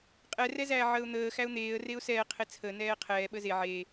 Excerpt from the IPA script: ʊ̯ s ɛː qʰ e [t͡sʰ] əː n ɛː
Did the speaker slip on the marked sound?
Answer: no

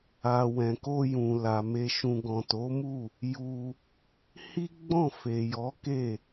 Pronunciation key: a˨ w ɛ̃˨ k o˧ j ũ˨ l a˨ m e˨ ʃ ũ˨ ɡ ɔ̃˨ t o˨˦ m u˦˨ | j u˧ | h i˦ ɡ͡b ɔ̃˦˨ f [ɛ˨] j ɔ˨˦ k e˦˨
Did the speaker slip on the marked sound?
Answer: yes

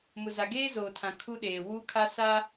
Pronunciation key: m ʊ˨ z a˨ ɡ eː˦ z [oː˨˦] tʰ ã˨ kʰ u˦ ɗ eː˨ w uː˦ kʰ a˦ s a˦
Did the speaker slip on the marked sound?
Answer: yes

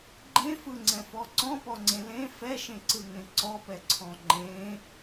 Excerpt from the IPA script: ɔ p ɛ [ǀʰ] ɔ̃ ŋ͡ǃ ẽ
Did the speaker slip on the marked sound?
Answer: no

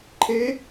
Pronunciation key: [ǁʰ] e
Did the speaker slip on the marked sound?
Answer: yes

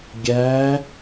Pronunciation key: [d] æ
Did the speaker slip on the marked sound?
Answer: yes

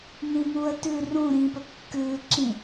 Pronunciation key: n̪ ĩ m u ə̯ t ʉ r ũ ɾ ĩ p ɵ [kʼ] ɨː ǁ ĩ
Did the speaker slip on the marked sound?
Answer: yes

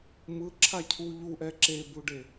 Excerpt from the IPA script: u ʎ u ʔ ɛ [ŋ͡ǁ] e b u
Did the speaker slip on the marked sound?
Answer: yes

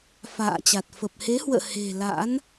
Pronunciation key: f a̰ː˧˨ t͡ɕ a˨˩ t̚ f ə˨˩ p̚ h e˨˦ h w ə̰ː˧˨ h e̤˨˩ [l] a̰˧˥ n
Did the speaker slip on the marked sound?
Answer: no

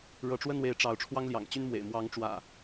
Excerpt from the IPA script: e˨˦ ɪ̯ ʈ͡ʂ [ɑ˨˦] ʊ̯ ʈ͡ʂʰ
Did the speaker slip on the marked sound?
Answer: no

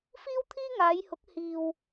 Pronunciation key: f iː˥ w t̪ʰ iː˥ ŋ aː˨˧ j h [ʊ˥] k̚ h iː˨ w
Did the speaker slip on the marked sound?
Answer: yes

